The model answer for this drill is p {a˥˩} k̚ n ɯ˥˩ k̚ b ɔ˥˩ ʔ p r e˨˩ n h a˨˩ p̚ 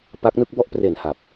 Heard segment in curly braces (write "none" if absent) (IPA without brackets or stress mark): a˦˥